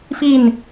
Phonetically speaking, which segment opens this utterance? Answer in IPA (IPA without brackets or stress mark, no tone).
f